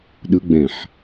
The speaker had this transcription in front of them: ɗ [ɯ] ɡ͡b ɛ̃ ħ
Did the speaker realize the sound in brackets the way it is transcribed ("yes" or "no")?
yes